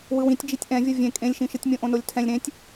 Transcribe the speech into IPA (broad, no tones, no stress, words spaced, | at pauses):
wɯwĩtʲ d͡ʒitʲʔɛ̃vʲɤ vʲẽ kʼẽlʲʃĩʃɯtʲ mʲõʔõnolʲtʰɛ̃lʲ ɾẽtʲ